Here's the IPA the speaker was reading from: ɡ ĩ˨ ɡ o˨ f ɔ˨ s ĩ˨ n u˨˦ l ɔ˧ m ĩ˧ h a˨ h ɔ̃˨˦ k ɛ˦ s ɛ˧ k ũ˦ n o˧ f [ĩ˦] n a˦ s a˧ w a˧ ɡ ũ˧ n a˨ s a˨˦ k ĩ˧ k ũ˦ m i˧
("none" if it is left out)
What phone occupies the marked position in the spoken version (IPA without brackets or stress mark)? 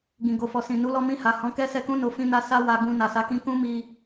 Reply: ĩ˦